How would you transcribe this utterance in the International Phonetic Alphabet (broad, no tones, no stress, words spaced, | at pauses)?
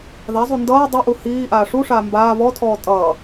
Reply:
ðazˤu ndʌː dˤuʔu hiː ʔaːʂuʂaː mbaː βɔtʰɔː tʼʌː